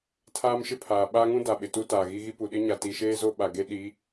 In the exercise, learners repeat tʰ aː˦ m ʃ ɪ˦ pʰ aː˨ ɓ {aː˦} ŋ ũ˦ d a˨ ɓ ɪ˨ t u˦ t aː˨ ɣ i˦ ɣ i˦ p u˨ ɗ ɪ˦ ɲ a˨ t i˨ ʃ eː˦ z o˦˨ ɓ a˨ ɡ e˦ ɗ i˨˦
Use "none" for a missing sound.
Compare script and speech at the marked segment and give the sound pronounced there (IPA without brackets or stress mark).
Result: aː˦